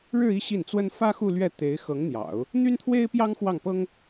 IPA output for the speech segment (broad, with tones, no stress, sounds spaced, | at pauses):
ɻ ɻ̩˥˧ i˥˧ ɕ i˥˩ n t͡s w ə˥ n f ä˥ x u˥˧ l ɥ ɛ˥˩ t̪ e˧˥ ɪ̯ x ɤ˧˥ ŋ n̪ j ɑ̰˨˩˦ ʊ̯ | n̪ y˥ n t̪ʰ w e˥ ɪ̯ p j ɑ˥ ŋ x w ɑ˥˩ ŋ p ɤ˥ ŋ